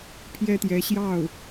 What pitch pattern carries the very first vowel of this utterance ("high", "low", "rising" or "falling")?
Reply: high